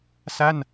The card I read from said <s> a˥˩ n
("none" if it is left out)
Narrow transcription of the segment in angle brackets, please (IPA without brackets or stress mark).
s